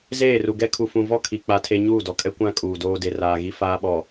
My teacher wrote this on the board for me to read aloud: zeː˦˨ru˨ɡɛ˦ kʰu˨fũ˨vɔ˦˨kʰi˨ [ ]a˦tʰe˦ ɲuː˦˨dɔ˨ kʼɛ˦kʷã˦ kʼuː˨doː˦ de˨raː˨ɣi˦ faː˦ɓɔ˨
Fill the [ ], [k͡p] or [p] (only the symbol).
k͡p